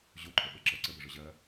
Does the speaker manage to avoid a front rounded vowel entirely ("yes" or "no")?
no